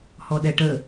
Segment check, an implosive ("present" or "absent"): present